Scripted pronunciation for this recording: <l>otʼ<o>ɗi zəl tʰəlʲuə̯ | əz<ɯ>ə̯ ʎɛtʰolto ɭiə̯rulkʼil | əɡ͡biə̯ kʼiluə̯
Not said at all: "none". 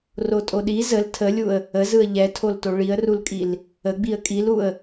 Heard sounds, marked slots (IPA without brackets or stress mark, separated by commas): r, o, ɯ